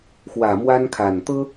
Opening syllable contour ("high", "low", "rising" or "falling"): low